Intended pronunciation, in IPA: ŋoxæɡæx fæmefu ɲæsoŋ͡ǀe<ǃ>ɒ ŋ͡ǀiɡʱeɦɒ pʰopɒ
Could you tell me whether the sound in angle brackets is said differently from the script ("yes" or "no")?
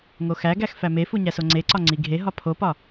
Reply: yes